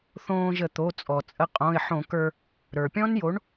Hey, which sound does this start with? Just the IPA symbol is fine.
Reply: θ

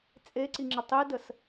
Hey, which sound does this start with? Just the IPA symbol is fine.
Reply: t͡sʼ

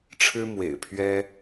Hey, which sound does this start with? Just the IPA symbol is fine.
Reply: ʈ͡ʂʰ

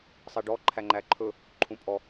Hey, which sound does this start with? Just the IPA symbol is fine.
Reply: sˤ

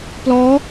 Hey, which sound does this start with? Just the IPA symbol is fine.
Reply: p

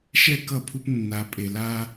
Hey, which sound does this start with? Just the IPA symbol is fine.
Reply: ʃ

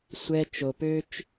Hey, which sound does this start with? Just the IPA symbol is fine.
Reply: sʷ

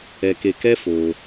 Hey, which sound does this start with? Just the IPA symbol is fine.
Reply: ɛ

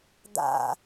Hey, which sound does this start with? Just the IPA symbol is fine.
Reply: d̪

